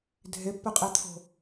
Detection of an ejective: present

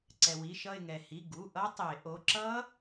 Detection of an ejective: absent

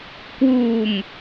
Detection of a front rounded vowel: absent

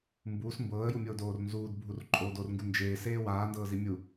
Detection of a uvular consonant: absent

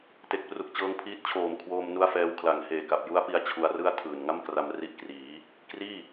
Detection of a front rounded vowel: absent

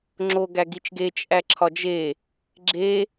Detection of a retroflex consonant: absent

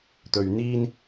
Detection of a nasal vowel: absent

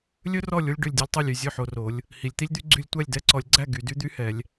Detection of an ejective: absent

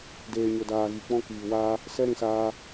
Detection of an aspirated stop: absent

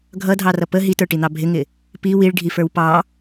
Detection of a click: absent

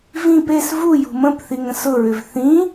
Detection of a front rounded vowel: present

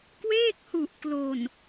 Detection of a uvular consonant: absent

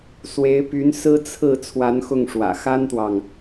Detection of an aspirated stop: present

